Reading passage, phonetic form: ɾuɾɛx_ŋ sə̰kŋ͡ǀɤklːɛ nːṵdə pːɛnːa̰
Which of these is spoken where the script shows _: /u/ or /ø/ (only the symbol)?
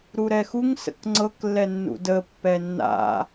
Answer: u